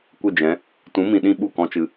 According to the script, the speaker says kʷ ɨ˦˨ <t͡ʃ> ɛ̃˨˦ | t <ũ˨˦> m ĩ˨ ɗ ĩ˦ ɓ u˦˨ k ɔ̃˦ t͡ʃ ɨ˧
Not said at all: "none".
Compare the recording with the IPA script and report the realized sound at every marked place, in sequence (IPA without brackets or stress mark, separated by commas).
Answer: d͡ʒ, ũ˨˦